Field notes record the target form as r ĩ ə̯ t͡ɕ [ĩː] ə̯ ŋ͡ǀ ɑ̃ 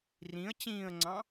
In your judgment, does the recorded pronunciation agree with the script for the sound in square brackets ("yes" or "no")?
yes